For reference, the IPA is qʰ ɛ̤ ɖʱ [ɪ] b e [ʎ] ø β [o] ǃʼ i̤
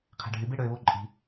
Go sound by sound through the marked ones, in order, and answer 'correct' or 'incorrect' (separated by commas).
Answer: incorrect, incorrect, correct